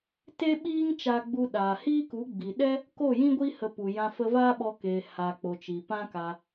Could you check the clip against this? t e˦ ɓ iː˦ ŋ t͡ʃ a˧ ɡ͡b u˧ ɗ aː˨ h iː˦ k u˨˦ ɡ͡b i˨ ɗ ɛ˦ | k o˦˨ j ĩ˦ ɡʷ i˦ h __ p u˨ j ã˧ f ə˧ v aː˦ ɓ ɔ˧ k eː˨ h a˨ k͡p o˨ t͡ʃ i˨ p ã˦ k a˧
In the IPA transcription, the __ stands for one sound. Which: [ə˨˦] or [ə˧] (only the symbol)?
ə˧